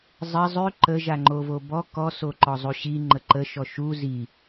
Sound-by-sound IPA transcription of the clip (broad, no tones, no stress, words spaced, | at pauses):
zˤɘ zˤʉ ǃə ʒaŋ͡ǃovobɔ kɔ soǃɔzˤuɕi ŋ͡ǃəǃə ʃɔʃu zi